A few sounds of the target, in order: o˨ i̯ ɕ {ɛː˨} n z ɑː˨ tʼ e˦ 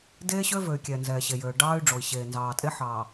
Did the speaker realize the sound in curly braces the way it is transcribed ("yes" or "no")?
no